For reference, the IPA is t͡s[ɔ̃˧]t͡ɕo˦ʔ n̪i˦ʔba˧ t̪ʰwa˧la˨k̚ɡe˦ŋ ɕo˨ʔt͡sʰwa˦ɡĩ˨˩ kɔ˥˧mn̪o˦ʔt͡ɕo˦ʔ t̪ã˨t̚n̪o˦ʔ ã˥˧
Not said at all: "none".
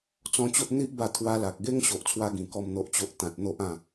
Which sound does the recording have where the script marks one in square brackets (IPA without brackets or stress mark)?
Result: ɔ̃˧